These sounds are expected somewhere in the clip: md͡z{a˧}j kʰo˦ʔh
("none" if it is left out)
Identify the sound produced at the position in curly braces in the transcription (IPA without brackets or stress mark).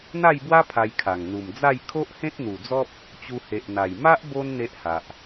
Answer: a˥˧